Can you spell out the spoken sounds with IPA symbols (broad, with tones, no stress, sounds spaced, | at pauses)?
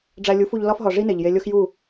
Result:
ɖ͡ʐ æ˧ lʲ u˨˦ f u˧ ʎ l ɒ˦ f ɦ ɒ˨ ʐ i˦ n e˨ ʎ j e˧ lʲ o˦ x j u˦˨